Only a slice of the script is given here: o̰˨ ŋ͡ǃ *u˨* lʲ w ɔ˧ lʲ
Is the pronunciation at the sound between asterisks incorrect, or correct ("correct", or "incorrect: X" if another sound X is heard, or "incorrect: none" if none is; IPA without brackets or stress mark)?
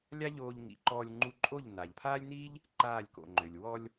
incorrect: ø˨